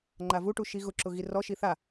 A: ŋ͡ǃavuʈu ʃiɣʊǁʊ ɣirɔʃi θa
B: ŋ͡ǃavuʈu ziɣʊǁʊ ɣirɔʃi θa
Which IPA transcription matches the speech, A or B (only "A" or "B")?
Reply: A